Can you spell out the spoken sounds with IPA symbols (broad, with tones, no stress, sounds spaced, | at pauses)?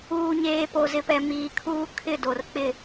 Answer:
uː˨ ɲ eː˨ p o˨ z ɪ˨ p ɛ˨ m iː˨ kʰ uː˦ kʰ ɪ˦˨ d o˨ r k͡p ɪ˦˨